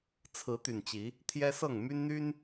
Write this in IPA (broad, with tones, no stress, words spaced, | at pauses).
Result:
t͡sʰɹ̩˨˦t̪y˨˩nt͡ɕi˨˦ | t̪ʰjɛ˦sɤ˥˨ŋ my˦nn̪y˦n